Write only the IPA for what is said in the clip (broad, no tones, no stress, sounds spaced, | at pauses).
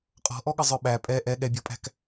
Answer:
qʼ ɔ̤ ʔ ɔ ɠ ə zˤ ə˞ ɓ æ pʼ ɛ ʔ ɛ ɠ ɛ bʲ ɔ pʼ æ̤ k